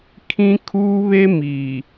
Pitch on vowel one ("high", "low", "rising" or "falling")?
high